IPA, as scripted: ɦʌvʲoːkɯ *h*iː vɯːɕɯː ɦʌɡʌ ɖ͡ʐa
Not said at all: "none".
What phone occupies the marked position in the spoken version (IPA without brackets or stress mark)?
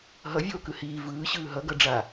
h